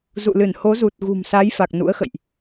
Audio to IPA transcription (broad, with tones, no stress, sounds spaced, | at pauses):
z ṵ˧˨ l ɨ˧˩ n h o˨˦ z u˨˩ t̚ ɣ ṳ˨˩ m s a˨˦ j f a˨˩ k̚ n ṵ˧˥ ə̯ x ə̰˧˨ j ʔ